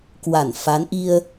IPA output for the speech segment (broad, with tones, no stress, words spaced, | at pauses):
kwa˧˩nfa˨˦nʔi˧ə̯